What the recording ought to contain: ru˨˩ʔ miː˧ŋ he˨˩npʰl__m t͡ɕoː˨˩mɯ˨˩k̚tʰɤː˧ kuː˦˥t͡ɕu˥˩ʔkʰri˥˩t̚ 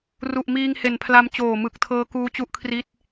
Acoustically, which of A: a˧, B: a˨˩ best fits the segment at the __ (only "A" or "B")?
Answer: A